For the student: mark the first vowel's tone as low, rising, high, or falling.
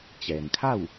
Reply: low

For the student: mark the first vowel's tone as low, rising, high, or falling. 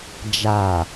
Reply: low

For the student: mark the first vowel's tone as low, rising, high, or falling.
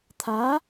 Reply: rising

